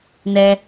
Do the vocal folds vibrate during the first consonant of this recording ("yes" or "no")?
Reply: yes